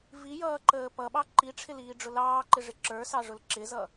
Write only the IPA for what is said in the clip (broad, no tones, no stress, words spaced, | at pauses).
vijʌːǃəː pʌɓɑ ǃiʈ͡ʂʰɪliːɖ͡ʐʊ lɑːǃɪʐɪ ǁə˞sɑʐʊl ǁɪzʌ